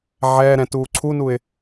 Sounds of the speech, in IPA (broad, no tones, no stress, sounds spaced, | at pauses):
ʕ ɛː ɾ ɛ̃ t uː ǀʰ u n u ɪ̯